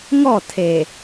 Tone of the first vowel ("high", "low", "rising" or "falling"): falling